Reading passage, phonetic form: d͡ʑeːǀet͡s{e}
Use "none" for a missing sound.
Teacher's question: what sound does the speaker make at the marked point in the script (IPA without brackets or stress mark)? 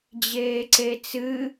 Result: ɨ